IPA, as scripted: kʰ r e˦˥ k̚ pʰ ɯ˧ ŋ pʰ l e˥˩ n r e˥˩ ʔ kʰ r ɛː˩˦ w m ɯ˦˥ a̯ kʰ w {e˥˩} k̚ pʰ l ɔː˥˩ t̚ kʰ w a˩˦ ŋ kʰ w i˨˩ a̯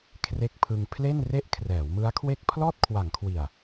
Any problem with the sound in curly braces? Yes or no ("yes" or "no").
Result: no